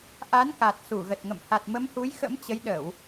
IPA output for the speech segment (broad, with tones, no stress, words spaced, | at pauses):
ʔa˨˦nka˨˩t̚ su˧˩ɣə˨˩t̚ŋə̰˧˨m ha˨˩t̚mə˨˦mhu˨˦jxə̰˧˥m t͡ɕə˨˦jɗə˧˩˨w